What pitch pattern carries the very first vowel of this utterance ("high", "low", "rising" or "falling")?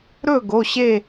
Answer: falling